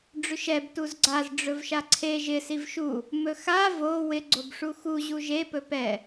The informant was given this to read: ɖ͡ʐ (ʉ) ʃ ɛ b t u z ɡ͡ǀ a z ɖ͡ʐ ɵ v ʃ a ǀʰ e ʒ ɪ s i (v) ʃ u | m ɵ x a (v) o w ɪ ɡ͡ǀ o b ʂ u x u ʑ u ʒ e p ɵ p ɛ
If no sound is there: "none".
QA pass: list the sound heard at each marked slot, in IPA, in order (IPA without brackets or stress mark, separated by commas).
ʉ, v, v